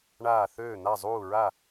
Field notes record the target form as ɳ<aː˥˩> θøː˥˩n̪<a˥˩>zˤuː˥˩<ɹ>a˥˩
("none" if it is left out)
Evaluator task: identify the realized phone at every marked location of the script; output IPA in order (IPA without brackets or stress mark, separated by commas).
aː˥˩, a˥˩, ɹ